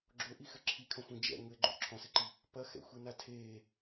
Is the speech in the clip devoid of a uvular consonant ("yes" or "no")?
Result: yes